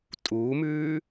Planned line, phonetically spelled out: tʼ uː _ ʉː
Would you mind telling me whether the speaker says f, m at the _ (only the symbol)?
m